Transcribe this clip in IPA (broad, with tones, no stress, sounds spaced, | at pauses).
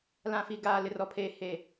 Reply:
l ã˨ f i˨ ɡ aː˨ l ɪ˨ r ɔ˨ pʰ eː˨ h e˨